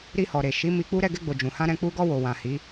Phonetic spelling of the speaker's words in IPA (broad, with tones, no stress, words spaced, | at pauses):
ɾi˧hɔ˨ɾe˨ ʃi˨˦ mi˧k͡pu˦ ɾɛ˦˨ɡɛ˧ɡ͡bo˨ d͡ʒũ˨hã˧ɾɛ̃˧ k͡pu˧ɡɔ˧ wo˨wã˨hi˨˦